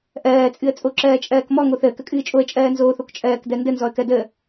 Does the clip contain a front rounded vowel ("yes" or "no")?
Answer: no